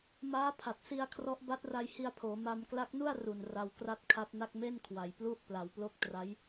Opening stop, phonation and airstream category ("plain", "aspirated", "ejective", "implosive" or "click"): aspirated